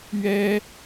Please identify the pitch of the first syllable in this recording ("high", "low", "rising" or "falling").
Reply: high